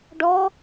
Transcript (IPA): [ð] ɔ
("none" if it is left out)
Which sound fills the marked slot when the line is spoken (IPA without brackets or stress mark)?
ɖ